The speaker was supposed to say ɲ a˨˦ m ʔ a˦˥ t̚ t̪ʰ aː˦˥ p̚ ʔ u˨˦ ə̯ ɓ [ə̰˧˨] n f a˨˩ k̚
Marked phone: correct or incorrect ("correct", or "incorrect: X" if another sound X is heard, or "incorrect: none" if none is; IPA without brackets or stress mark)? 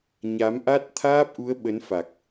incorrect: ə˨˦